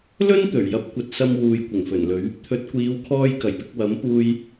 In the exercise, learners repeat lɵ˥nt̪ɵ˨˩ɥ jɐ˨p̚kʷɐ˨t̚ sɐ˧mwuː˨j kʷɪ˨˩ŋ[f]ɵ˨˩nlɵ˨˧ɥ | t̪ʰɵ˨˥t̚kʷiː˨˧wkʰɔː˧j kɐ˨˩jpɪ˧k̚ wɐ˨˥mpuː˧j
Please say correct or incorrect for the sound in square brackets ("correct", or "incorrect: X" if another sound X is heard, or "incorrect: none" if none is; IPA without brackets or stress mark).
correct